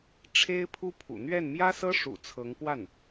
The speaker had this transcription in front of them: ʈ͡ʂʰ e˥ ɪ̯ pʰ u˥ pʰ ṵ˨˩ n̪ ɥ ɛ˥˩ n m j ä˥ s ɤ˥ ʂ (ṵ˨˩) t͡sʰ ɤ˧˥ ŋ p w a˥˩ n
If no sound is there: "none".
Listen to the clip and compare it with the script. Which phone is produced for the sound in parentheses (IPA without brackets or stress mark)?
ṵ˨˩